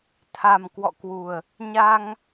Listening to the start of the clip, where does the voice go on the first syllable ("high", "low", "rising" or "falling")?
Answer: low